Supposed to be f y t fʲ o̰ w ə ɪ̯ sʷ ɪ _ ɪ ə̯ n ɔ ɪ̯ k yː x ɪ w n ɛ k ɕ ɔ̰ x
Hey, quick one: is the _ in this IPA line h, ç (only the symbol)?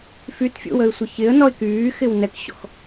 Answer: ç